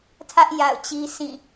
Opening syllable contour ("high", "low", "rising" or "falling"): high